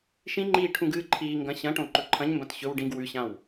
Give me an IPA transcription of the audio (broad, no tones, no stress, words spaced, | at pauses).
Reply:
ʃĩŋ͡ǃiː ʈʰũɡɨːǃʰiːŋɡɐ̃ ɕɐ̃ʈõ ǃɵǃʰɐ̃ɲmbɐ̃t ɕɵw ɖĩɡ wʉɕãw